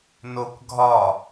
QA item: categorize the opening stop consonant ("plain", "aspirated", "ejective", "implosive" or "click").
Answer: plain